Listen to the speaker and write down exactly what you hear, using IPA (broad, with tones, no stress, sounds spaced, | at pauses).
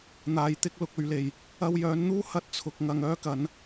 n̪ aː˨ j t̪ ɪ˧ k̚ l ʊ˨ k̚ ɵ˨ ɥ l e˨˩ j | ɐ˧ w j œː˨˥ n n̪ uː˥ h ɐ˧ t̚ t͡sʰ ʊ˨ k̚ ŋ ɐ˨ ŋ œː˥ k ɐ˨˥ n